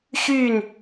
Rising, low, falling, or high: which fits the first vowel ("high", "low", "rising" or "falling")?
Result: falling